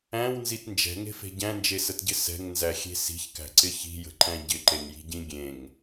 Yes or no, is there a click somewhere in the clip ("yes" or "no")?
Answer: yes